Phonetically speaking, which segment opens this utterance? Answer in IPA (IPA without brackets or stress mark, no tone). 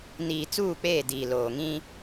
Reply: n